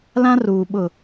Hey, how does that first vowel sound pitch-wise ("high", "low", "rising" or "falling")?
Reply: high